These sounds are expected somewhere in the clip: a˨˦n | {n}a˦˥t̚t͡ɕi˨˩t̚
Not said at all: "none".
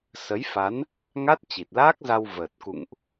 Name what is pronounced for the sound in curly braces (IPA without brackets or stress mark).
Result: ŋ